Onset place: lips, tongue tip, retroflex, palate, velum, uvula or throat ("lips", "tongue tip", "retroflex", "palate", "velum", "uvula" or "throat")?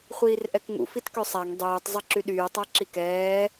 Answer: uvula